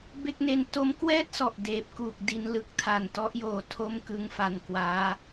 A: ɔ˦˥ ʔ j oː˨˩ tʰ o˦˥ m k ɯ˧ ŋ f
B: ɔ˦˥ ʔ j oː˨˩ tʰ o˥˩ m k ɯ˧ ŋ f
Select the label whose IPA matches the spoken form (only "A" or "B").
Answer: B